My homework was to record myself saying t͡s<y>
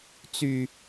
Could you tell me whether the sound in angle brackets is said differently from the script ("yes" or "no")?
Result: no